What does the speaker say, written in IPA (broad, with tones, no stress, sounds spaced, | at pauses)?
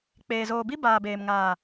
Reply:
k͡p eː˨ z oː˨ b i˦ b aː˨ b eː˨ m ŋ aː˨